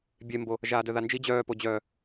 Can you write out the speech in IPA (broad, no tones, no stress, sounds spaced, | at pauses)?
bʲ e m b o | ʒ aː d œ ð a n d͡ʒ i d͡ʑ œː p o d͡ʑ œː